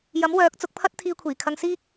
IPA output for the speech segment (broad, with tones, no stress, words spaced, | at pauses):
jɐ˨˥m wœː˨˥k̚t͡sʊ˨˥k̚pʰɐ˥t̚ t̪ʰiː˧kʷʰiː˨˩kʰɐ˧ŋsiː˥k̚